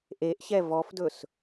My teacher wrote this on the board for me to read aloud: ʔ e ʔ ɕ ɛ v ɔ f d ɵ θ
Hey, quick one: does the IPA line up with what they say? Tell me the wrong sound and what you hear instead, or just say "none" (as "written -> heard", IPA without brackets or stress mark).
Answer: θ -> s